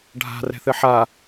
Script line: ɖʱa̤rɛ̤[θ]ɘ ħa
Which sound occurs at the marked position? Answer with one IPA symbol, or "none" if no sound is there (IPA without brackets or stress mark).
θ